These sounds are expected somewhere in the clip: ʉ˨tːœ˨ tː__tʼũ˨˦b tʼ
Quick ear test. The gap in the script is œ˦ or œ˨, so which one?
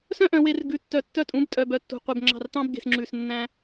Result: œ˦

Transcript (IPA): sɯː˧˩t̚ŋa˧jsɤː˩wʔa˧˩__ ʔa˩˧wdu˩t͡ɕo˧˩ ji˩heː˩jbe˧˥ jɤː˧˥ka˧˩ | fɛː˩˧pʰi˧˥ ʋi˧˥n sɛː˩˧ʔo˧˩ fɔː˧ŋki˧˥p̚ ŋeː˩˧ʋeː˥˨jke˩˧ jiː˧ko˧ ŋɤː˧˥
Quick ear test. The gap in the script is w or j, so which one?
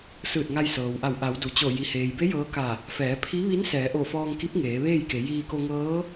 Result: w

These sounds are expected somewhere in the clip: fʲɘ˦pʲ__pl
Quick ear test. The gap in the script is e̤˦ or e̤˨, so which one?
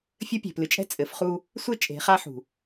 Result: e̤˨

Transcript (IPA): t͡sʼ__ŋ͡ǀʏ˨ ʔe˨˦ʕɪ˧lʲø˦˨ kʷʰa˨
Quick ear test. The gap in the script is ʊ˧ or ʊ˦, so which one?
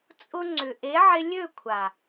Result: ʊ˧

